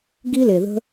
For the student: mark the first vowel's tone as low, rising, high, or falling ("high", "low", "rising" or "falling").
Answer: high